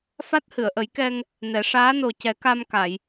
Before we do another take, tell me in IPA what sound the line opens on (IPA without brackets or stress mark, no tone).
f